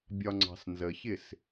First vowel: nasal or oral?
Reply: oral